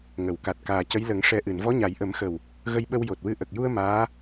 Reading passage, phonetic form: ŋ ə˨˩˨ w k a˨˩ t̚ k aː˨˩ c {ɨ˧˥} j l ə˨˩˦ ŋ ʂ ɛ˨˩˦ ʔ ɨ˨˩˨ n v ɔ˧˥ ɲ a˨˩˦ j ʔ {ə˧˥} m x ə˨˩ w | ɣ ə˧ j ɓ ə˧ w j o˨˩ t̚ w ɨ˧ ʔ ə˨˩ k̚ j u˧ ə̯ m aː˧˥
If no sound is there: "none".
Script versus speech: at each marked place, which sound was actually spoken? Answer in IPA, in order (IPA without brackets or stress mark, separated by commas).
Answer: ə˧˥, ə˨˩˦